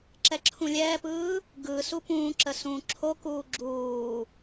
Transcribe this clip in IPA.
ǁ ɛ ǁʰ ũ lʲ ɛː p ɯː | ɡ ɯ s u p ũː ǁ ə s ũː ǁʰ o k uː ɡ͡ǁ uː

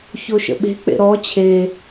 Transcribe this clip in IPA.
ç o ʃ ə̰ ɓ e̤ k͡p ḛ ɾ ɔ t͡ɕʰ e

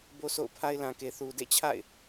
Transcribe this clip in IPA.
b o˦ sʰ o̰˦˨ ʊ̯ pʰ a˦ ɪ̯ l ã˨ k e˨ θ u˨ d ḛ˦˨ t͡ɕʰ a̰˦˨ ɪ̯

